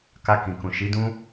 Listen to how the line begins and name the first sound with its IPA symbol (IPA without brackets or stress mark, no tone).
k